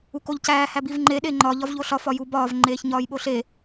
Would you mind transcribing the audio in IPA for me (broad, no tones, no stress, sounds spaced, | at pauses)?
u k o ʎ c æː h æ b i v ŋ͡ǃ e ɗ e ŋ͡ǃ ɒ ʎ ɒ v ʎ o ɬ ɒ f ɒ j u b ɒː v ŋ͡ǃ eː ç ɲ ɒː j ɓ o ɬ e